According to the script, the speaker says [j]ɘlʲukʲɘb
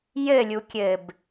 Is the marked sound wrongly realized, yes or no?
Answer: no